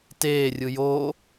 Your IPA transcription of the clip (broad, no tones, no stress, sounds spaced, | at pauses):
t eː rʲ ɯ j oː